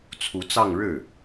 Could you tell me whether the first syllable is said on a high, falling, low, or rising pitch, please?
rising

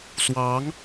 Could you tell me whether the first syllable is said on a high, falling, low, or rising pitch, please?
rising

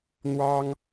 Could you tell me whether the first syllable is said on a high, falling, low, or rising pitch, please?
high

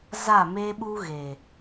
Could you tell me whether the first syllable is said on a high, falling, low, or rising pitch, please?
falling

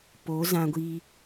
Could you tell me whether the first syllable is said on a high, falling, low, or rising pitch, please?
rising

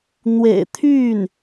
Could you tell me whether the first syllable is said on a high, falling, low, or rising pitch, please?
low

